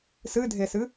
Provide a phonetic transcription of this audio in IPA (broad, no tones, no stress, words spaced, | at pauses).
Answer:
sɨdʱesɨ